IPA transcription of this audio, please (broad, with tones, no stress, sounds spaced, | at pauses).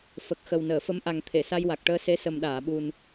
f ə˨˩ k̚ x ə˨˩ w n əː˨˩˨ f ə˧ m ʔ a˨˩ ŋ t̪ʰ e˨˩˨ s a˧ j w a˨˩ k̚ ʈ əː˧ s e˧˥ s ə˨˩ m ɗ aː˨˩˨ ɓ u˨˩ n